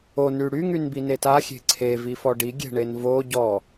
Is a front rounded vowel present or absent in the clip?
present